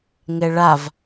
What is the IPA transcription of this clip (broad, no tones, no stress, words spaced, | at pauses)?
ŋɛɭav